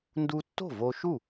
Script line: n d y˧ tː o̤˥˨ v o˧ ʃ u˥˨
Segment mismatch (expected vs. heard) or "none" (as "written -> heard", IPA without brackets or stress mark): y˧ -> u˧